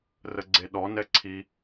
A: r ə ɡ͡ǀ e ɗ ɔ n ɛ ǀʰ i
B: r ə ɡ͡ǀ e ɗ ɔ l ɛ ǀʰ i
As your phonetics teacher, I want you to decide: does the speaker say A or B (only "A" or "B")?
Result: A